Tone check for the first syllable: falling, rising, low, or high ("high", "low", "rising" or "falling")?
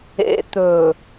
low